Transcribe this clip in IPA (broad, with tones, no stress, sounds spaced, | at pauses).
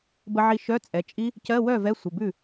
b ə˧ ʕ i˧ ʃ œ˧˥˧ t͡sʼ ɛ˩˧˩ t͡ʃʼ i˦˥ | c ɜ˧˥˧ w œ˥˩ v ɛ˧˥˧ sʷ ə˩˧˩ b ʉ˥˩